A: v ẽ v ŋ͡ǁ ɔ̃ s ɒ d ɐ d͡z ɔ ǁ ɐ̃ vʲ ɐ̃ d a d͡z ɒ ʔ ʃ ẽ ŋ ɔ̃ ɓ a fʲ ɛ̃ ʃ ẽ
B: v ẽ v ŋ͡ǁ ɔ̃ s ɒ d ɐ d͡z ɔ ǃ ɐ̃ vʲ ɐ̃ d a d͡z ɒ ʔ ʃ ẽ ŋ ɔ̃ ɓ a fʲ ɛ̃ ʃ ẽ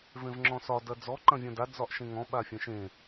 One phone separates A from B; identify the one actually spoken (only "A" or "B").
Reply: B